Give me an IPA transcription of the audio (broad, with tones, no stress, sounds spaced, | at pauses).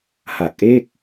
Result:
h a˨˩ k̚ ʔ e˥˩ k̚